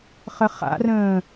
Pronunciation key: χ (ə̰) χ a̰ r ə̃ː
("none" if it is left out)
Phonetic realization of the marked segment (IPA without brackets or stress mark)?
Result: ə